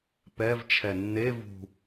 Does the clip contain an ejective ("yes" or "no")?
no